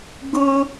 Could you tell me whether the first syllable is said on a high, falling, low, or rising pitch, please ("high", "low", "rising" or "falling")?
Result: high